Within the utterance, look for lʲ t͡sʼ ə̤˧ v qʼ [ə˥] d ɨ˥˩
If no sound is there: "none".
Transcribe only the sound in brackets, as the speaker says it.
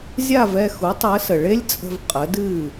ə˩˥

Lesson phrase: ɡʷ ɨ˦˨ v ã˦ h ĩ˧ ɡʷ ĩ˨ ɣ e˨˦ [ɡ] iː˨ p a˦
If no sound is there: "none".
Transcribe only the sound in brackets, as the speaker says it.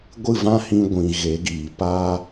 ɡ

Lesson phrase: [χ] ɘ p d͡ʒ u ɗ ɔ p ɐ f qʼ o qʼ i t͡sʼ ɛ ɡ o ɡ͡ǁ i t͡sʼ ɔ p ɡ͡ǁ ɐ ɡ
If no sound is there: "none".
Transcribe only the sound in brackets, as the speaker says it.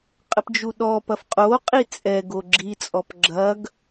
qʼ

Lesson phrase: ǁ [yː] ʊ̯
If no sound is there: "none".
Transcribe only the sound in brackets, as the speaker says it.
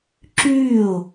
yː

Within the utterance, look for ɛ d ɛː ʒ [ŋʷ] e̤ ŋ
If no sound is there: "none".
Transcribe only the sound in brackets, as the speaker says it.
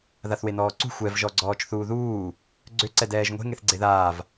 ŋʷ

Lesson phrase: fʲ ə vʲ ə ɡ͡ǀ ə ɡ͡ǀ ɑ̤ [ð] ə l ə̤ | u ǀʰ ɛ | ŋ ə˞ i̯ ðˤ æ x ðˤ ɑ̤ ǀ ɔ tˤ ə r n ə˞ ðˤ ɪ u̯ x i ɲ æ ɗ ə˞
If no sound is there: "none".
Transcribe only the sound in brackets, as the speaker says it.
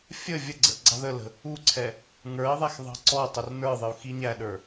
ð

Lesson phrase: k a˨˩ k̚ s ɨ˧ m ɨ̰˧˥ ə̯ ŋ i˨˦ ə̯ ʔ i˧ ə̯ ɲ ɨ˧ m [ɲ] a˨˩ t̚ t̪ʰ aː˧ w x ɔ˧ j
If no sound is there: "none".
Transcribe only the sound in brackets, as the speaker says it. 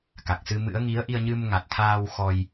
ŋ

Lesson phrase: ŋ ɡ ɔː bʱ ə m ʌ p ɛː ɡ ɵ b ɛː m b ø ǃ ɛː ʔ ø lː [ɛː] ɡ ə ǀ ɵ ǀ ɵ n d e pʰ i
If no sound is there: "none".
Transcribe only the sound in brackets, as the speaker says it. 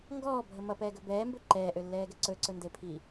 ɛː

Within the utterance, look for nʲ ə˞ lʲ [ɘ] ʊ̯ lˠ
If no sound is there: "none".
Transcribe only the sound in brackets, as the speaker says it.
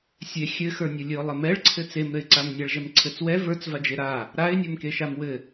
ɘ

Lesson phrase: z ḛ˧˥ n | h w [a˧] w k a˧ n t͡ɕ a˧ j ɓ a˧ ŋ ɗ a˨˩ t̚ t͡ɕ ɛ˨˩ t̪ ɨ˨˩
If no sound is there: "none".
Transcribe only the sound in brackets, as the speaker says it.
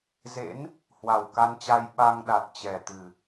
a˨˩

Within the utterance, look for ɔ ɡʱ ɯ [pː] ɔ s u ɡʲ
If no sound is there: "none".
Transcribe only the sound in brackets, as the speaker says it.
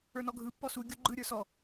pː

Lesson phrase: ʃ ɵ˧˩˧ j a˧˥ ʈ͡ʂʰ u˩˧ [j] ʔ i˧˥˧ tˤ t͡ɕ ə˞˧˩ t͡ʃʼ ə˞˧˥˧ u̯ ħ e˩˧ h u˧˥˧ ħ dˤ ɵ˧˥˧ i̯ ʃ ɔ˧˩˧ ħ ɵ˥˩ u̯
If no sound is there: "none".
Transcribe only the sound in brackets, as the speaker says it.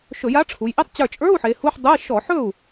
j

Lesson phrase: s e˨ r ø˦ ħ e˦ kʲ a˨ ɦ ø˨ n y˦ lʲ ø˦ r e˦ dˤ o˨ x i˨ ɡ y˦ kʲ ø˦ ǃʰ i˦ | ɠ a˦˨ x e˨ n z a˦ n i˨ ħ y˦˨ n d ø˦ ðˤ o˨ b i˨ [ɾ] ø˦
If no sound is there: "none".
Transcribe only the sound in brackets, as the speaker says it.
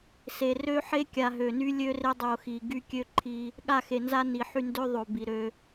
ɾ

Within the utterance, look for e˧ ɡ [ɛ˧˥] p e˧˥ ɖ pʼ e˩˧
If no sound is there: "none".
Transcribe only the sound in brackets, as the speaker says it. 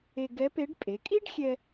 ɛ˧˥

